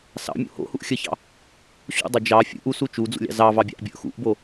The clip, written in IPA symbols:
s ɑ̰ mʲ ṵ h o̰ h u ʔ xʲ ə ç ɑ̰ | ɕ ṵ dˤ o d͡ʒ ɑ fʲ ṵ ʔ u s u t͡ʃ u d͡z ṵ lʲ ɑ̰ z ɑ v ɑ bʲ ɑ̰ ʔ bʲ ə ʔ x ṵ ʔ b o

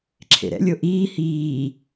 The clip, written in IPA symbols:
ǁʰ ḛ ɾ ɛ̰ lʲ o ʔ iː h iː

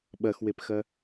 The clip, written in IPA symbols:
ɓ ɐ x w e p x ɐ

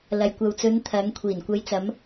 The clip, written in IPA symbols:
l ɐ˨ j kʷ ɐ˨ w t͡s ɵ˨˧ n t̪ʰ ɐ˨˧ ŋ kʷʰ iː˨˩ n kʷ ɐ˨˧ j t͡s ɐ˨˧ m

